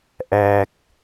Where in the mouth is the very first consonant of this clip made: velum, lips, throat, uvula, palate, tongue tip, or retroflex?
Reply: throat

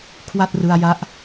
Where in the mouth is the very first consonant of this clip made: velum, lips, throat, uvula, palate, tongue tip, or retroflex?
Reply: velum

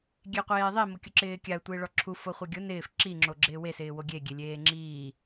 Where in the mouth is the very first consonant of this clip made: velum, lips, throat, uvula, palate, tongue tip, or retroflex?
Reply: velum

